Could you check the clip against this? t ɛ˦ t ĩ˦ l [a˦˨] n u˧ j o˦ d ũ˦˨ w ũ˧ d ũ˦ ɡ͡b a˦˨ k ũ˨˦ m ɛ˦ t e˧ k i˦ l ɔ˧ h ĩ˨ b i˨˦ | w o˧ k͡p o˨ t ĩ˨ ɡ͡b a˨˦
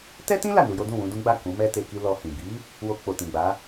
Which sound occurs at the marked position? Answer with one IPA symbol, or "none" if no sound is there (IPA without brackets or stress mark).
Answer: a˦˨